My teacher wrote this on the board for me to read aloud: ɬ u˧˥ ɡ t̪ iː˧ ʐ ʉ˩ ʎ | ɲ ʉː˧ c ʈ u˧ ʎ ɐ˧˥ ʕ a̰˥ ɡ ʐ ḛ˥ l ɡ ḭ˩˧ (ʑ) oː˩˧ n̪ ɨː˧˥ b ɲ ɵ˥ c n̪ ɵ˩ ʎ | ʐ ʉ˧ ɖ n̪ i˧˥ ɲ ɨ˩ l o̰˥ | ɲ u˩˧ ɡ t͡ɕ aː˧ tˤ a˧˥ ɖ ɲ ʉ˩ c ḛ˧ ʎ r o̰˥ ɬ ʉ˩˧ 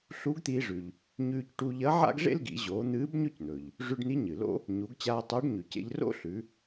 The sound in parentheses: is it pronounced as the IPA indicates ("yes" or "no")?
yes